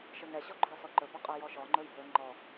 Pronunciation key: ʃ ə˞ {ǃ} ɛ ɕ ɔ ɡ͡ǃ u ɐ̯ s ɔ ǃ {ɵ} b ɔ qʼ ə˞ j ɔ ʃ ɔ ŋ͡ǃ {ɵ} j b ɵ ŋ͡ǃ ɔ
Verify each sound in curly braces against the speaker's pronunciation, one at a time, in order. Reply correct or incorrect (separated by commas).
incorrect, correct, correct